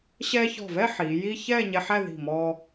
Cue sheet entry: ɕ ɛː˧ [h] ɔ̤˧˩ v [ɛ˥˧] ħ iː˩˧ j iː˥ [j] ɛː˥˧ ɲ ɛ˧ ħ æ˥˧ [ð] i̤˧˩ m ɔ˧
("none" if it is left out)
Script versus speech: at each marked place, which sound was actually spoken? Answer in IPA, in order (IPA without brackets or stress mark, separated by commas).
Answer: ç, ɛ˥˧, ç, ð